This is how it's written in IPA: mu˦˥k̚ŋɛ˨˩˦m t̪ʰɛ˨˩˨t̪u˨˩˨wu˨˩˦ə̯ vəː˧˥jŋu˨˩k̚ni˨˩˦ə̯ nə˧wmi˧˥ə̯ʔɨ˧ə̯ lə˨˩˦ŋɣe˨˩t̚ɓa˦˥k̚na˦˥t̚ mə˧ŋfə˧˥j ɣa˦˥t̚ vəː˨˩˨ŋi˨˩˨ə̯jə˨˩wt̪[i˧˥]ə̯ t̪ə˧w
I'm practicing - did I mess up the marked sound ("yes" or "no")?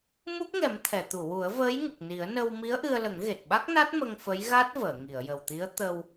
no